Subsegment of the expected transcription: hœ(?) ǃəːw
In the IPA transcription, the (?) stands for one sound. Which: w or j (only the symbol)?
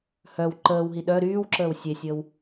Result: w